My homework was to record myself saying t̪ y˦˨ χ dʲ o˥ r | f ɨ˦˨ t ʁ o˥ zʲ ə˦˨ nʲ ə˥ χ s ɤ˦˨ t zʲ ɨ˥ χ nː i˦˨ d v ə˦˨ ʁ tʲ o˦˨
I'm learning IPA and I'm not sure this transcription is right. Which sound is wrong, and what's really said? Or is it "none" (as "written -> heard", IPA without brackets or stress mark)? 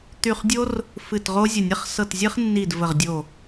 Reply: tʲ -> dʲ